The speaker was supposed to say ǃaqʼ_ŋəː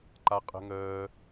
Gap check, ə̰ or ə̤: ə̤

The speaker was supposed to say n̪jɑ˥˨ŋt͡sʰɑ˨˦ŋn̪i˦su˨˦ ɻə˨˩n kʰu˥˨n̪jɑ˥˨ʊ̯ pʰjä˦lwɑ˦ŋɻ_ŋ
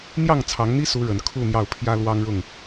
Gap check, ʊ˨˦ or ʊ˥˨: ʊ˥˨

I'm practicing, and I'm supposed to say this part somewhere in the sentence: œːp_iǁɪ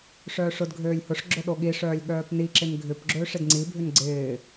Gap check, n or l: n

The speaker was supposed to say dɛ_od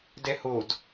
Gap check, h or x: h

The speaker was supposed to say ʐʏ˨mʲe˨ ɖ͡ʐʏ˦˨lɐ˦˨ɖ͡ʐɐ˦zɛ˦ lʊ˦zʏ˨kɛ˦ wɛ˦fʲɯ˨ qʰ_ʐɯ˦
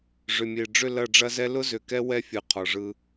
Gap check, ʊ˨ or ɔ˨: ɔ˨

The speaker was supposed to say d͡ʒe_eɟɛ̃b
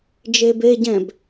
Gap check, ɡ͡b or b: b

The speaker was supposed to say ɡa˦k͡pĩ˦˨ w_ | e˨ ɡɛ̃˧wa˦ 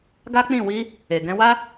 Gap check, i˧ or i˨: i˧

